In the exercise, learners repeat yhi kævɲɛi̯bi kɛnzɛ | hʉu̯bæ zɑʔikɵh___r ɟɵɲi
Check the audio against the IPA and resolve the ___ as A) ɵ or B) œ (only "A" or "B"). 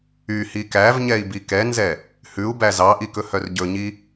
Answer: B